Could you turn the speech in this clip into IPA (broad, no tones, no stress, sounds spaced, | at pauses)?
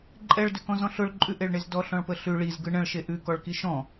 ǃʼ ɛ ɭ d ʏ k ɔ̃ z ɔ̃ ɬ ʊ ɭ ǃʼ ʉ ʔ e ɭ ɳ e z d ɔ ɬ ɔ̃ ɭ p ə ɬ ʉ ɭ i z ɡ ɯ ɳ ə̃ ɭ ʃ e ʔ ʉ k ɔ ɭ k i ʃ ɔ̃